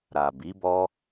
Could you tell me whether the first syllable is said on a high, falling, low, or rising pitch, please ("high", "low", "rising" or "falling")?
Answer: low